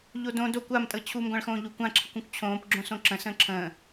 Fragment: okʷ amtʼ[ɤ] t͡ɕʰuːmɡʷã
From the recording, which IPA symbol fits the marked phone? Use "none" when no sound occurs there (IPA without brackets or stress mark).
ɤ